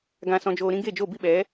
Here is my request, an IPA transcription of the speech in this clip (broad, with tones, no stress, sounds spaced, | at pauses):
ɡ ã˧ s ɔ̃˧ d͡ʒ oː˧ ɾ ĩ˦ ɡ e˦˨ d͡ʒ o˦˨ b i˦ ɓ ɛ˨˦